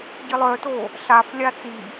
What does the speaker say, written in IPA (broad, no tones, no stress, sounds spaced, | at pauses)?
ɟ i lˠ œ t o | ɬ a f lʲ a t͡s i